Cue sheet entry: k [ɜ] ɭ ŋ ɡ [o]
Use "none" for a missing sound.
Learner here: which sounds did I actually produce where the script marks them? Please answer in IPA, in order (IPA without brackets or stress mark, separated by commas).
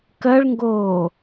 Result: ɜ, oː